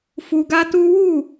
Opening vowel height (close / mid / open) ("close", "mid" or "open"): close